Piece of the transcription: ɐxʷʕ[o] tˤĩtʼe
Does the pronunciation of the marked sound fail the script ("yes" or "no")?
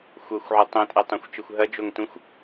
no